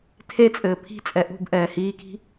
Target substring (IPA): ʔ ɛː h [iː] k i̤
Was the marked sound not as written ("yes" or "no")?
no